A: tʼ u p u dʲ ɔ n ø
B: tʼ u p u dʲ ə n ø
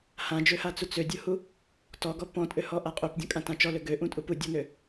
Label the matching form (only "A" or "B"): A